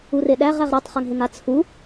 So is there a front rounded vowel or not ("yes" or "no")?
no